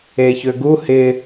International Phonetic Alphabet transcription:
e ç ø ɡ u h ɪ

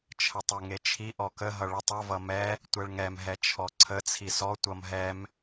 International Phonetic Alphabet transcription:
t͡ʃʰ ə tˤ e ŋ e t͡ʃʰ i ʔ ɔ k ə ɦ ʌ ɭ ə tˤ ʌ v ʌ m ɛ | tʷ ɛ ɭ ŋ ɛ m ɦ ɛ t͡ʃʰ ɔ ǀʰ ə t͡sʰ i s ɔ tʷ ʌ m ɦ ɛ m

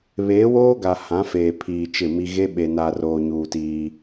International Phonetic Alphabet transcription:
β eː˨˦ w oː˦ ɡ a˨ h ã˨˦ f eː˨ pʰ iː˨ t͡ʃ ɪ˦˨ m i˦ ɣ e˦ ɓ e˨ n a˨ r oː˨ ɲ uː˨ t iː˦

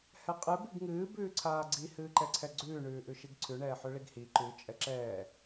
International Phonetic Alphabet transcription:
h ɛ qʼ ɨ b i ɡ ŋ ɨː b ʉː ǀʰ aː ɡ͡ǀ i h ɨː ǃ ɛ ǀʰ ɛ ɡ͡ǀ ʉː ɳ ʉː ʔ ʉ ʃ i ɡ ǀʰ ʉ ɳ ɛː ħ ʉ ɭ i ɡ h i ǃ ʉ t͡ʃʼ ɛ ǁ ɛː

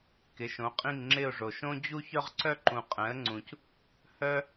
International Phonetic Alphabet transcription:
k ɪ˩˥ ʃ õ˩˥ qʼ ĩ˦˨ ŋ ŋ͡ǁ ɪ˦˨ ʊ̯ ʐ o˨ ʃ õ˦ d͡ʑ u˦ ç œ˦ ʁ ǀ œ˦ ǃ ũ˨ qʼ ɛ̃˩˥ ə̯ ŋ͡ǀ ũ˨ c | h œ˦

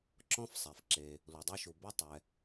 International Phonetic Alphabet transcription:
ǁ ɔ̃˥ f sˤ ɛ˩ f ǁ e˩ | l u˩ dˤ ɛ˥ ʃ u˩ b ɐ˥ tˤ ɛ˩

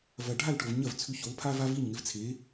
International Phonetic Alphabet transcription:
v ɐ˩ ɖʱ a˥˩ l ʈ o˩ v ɲ ɐ˥˩ v t͡sʰ ʉ˧ ç o˩˥ l pʰ a˥ v a˥ v i˥˩ ɲ ŋ ɪ˧ v t͡sʰ e˩˥

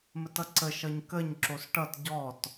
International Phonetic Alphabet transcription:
m ə t ʌ ǀ ə ʃ ʌ ɲ k ə ɲ ǁ o s ʈ ʌ t ɟ ɔ t

